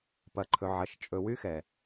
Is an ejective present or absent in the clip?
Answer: present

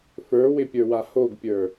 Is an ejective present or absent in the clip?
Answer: absent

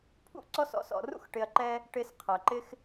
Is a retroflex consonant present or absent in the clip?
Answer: present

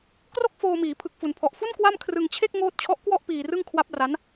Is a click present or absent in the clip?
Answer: absent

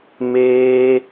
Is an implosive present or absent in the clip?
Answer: absent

